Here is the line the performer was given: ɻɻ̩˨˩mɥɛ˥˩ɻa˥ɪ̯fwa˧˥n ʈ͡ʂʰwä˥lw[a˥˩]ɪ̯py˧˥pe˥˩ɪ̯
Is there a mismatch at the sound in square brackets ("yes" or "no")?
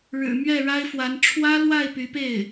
no